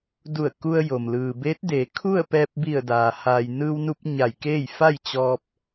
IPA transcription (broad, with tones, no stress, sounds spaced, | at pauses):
d u˧˩ ə̯ k u˧ ə̯ j o˩ m l ɯː˩ b eː˧˥ t̚ d eː˩˧ kʰ u˥˨ ə̯ p ɛː˧ p̚ b i˧˩ ə̯ d aː˩ h aː˩ j n ɯː˧ w n u˧ p̚ ɲ a˧˩ j k eː˥˨ j f a˥˨ j t͡ɕ ɔː˧ p̚